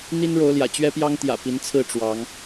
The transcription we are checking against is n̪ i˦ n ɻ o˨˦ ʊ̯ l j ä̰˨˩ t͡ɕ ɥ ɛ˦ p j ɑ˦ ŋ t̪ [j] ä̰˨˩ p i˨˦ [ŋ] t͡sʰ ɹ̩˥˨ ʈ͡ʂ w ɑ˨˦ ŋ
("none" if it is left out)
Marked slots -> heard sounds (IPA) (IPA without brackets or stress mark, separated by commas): j, n